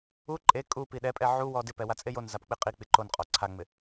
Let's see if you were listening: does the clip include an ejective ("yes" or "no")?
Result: yes